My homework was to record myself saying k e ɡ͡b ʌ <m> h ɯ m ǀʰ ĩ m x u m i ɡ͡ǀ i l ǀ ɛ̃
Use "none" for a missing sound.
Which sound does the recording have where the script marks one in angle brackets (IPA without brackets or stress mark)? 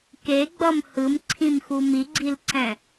m